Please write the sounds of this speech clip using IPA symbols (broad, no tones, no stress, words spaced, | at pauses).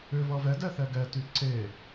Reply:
ʏ vʌvɛ dɛθɛɡɛ tyǀe